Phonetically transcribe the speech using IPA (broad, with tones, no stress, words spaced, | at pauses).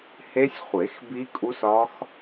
he˦˥sʲχʷe˨˩˦x bi˦˥kʼu˦˥sɒ˦˥x